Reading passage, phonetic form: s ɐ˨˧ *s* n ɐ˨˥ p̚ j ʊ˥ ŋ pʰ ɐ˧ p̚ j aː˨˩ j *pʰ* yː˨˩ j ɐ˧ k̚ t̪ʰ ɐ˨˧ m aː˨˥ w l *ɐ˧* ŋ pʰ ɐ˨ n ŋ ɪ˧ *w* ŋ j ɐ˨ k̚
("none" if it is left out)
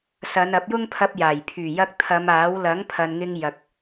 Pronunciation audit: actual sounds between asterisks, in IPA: none, pʰ, ɐ˨˥, none

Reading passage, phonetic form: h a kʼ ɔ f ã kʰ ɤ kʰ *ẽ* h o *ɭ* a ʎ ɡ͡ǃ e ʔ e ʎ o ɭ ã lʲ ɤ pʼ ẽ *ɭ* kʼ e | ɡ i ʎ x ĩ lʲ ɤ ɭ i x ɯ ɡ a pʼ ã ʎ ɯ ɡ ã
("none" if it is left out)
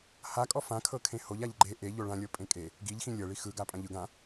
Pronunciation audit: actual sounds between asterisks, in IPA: ẽ, ʎ, none

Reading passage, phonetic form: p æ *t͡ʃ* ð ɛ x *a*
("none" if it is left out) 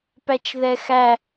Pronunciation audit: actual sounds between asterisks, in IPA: t͡ʃ, æ

